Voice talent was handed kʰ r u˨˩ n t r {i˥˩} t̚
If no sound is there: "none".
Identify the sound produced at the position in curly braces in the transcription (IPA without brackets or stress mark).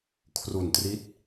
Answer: i˦˥